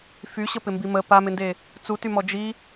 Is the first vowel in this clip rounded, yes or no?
yes